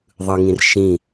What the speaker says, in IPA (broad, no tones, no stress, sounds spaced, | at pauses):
ðˤ ɯ ŋ ĩ r ʃ ĩ